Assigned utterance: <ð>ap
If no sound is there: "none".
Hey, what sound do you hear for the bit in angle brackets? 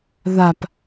ð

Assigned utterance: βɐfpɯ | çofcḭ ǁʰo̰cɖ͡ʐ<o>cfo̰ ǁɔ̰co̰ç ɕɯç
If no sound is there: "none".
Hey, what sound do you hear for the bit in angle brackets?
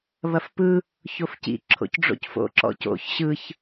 o̰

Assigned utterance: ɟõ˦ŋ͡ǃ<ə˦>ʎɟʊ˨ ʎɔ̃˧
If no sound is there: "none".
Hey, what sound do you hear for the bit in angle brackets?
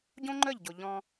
ə˦˨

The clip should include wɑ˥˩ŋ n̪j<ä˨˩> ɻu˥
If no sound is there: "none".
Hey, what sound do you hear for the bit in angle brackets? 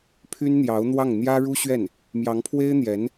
ä˥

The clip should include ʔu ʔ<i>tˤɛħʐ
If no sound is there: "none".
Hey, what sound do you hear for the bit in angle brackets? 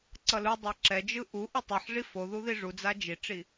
i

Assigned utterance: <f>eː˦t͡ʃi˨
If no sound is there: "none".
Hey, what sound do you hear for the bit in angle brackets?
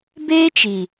b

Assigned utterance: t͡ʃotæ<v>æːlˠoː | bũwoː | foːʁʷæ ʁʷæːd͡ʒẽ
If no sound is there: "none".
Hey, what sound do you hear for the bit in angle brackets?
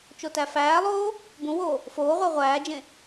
f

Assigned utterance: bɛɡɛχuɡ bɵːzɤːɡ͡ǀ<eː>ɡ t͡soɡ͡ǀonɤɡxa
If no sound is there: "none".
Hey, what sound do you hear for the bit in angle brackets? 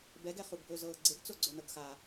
e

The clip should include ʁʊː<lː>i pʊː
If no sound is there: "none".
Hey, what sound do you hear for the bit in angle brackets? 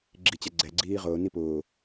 n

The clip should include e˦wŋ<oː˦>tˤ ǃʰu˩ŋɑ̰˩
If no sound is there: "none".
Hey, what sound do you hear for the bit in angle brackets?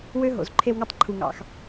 o˦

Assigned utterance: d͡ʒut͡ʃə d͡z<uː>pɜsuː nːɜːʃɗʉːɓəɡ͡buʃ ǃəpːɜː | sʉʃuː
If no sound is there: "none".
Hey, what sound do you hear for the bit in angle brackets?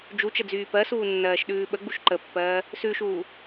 yː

